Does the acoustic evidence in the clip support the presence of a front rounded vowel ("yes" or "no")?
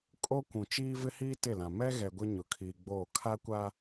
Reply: no